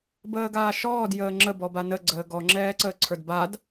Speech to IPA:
bəːɡaːʃɔːd jəːŋ͡ǁə bɔbanə ɡ͡ǀəːɡɔ ŋ͡ǁɛːǀəːǀʰə˞dbad

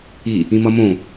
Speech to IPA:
i | ĩmʌmõ

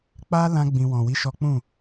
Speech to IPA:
k͡pa˦ lã˦ɡ͡bĩ˧ wɔ̃˨wi˨˦ ʃɔ˦ k͡pũ˦˨

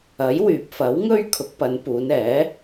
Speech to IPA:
ɐ˨˥jwyː˨p̚fɐ˨˥wŋɵ˥ɥ kʰʊ˨˥k̚pɐ˨˧npuː˨˧nɛː˨˥

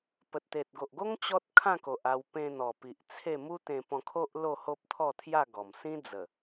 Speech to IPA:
pə˨t̚t̪e˨t̚ ɡo˨ʔɡo˦ŋ t͡ɕɔ˦t̚ kʰã˥˧ko˨ʔ a˧w pẽ˧n̪ɔ˨˩pi˨ʔ t͡sʰe˥˧ mu˦t̪ẽ˧pɔ̃˧kʰo˦ʔ lo˥˧ho˦p̚t̪ʰɔ˥˧t̪ʰja˥˧ ɡɔ˨˩msĩ˦ d͡zə˨˩

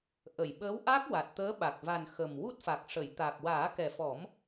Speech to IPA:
ʔə˨˩˨jɓəː˧˥w ʔa˦˥k̚ wa˨˩t̚t̪əː˧˥ɓa˨˩k̚va˨˩n xə˨˩m wu˦˥t̚fa˨˩k̚ʂə˨˩˨j t̪a˨˩k̚waː˨˩˦kɛ˨˩fɔ˨˩˦m

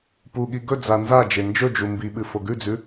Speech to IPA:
puɠi ɡɵ d͡zanzad͡ʒe nd͡ʒɵd͡ʒu mbiɓɨ foɡʉd͡zʉ

